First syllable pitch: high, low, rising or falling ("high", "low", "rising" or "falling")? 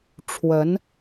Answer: rising